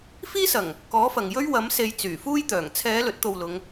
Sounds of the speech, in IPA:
fiː˥sɐ˨˩ŋ | kɔː˨˥fɐ˨ŋ jɵ˥ɥ wɐ˨˥mse˨˧j t͡syː˨˩fuː˥jt̪œː˨˩ŋ t͡sʰɛː˨˧ lɵ˨˥t̚t̪o˧wlʊ˨˧ŋ

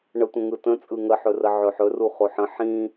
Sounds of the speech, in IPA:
ɳətʷə̃ ŋɯtə̃ t͡sʼɯŋəħɵrə ʕɵħɵru χoħə̃ ħĩ

